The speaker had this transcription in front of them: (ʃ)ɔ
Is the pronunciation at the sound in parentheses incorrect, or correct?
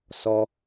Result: incorrect